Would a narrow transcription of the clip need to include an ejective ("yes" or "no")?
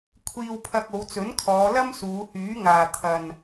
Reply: no